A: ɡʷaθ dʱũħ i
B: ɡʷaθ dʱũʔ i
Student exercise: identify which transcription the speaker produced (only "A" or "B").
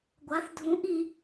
B